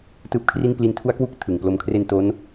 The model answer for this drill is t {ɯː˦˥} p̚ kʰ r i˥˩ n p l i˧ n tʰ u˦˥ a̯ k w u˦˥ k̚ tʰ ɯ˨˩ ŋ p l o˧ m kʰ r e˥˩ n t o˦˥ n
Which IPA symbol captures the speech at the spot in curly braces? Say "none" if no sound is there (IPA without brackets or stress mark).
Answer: ɯː˦˥